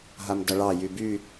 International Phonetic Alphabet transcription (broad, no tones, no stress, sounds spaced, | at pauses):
ɦ a m d ʌ ɭ ɑ j y b y